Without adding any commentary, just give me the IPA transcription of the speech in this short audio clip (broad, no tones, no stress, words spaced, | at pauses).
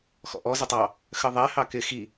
xɔ̰ʔɔ zɪtˤɑ | xəðˤɛ hɑkɪ xi